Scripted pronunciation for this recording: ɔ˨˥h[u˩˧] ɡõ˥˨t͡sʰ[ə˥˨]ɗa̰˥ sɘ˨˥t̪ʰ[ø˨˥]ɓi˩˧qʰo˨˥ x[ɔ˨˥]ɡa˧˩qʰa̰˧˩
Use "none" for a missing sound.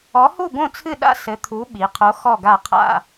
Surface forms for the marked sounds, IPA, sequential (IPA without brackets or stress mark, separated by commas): u˥˨, ɨ˥˨, u˨˥, ɔ˧˩